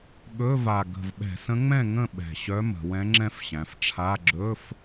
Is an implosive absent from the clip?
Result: no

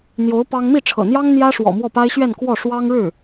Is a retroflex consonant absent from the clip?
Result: no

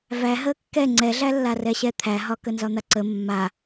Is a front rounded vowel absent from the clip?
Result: yes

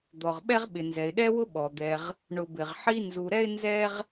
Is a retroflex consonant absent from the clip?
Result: no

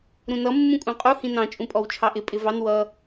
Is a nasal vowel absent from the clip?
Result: no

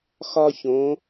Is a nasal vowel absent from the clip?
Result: no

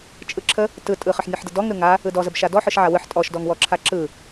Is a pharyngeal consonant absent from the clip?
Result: no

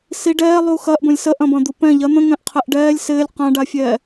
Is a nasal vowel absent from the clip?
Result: no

